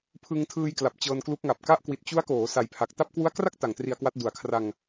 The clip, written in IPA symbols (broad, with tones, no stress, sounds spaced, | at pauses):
pʰ ɯ˧ ŋ tʰ ɯː˧ j k l a˨˩ p̚ t͡ɕ ɤː˧ n k l u˦˥ k̚ ŋ a˨˩ p̚ k a˥˩ ʔ k w i˨˩ t̚ t͡ɕ u˦˥ a̯ k oː˩˦ s a˨˩ j pʰ a˨˩ k̚ t a˥˩ p̚ k w u˦˥ a̯ k r a˥˩ k̚ t a˨˩ ŋ t r i˧ a̯ k w a˦˥ t̚ d u˨˩ a̯ kʰ r a˧ ŋ